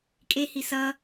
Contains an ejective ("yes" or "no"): yes